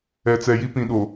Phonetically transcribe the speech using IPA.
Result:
ɛ˨ t͡s ɛ˨ j i˦ p ĩ˨ ɗ o˨

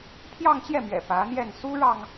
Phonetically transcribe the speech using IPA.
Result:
pʰ j ɑ˥˧ ŋ t͡ɕ j ɛ˥˩ m ɥ ɛ̰˨˩ p ä˧˥ n̪ j ɛ˥˩ n s u˥ ɻ ɑ˨ ŋ

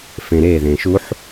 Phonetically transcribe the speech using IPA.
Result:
f ẽ ɾ e ð ẽ ʃ u ħ

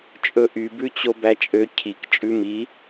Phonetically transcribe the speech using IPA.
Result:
t͡ʃʼ ɵ ʔ y b ʉ t͡ɕ o b æ t͡ʃʼ ø cʰ i k t͡ʃʼ ʉ m i

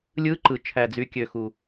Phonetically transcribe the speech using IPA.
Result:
lʲ ɯ˧˥ ǃ ɯ˩ t͡ʃʰ æ˩ d͡z y˩ kʲ ø˩ x u˩

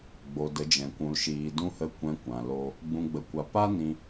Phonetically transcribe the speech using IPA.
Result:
ɡ͡b o˨ d ə˨˦ d͡ʒ ɛ̃˨ kʷ ũ˨ l ʃ iː˨ d ũ˧ h ə˧ kʷ ɛ̃˧ kʷ ã˨ l o˦ | ɡ͡b ũ˨ ɡ͡b ə˨ kʷ a˨ p a˦ n ĩ˧

